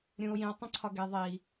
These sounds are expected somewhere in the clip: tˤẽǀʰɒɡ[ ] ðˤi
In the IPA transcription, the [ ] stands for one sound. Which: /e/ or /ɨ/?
e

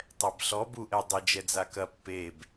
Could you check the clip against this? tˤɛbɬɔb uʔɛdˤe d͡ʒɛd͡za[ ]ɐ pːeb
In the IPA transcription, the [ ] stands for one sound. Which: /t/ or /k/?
k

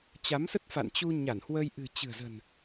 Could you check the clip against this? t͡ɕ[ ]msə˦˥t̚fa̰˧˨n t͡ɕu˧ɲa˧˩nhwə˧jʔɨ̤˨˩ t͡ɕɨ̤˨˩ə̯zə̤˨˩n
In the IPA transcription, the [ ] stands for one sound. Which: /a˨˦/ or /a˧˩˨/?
a˨˦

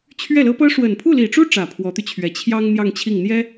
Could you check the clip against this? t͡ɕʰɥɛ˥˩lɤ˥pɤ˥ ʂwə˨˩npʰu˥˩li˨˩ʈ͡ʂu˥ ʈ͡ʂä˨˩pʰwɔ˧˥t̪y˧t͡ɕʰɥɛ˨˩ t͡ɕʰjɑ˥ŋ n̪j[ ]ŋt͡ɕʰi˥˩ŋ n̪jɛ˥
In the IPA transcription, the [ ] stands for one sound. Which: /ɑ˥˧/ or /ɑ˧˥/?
ɑ˥˧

